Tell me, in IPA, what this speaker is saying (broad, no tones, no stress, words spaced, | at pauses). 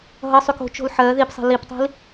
ɦʌsˤyk o̤t͡ʃo̤l ħɜ ðipsˤɛ̤ liptˤi̤l